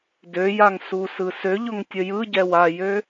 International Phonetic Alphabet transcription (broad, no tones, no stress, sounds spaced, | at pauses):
d ø j a ŋ s u s ɯ s ø ʎ ʊ ŋ tʲ ə j ɯ ɟ ɛ w a j ø